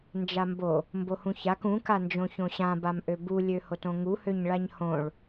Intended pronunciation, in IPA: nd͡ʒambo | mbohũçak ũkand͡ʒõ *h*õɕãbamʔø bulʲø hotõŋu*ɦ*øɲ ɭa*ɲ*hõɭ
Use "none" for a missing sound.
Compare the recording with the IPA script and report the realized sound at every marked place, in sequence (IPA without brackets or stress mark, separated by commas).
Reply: ç, h, ɲ